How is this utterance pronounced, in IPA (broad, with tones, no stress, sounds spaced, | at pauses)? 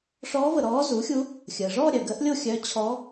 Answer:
ʂ ɔː˧˥ v ə˩ ɾ ɔː˧˥ z u˩˥ xʲ u˧˥ | xʲ əː˩ ʐ ɔː˥˧ ɾʲ œ˩ ɡ əː˧˥ ʔ lʲ o˥˧ xʲ œː˧˥ t͡ɕʰ ɔ˧˥